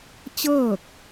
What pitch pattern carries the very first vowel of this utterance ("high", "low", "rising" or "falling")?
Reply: falling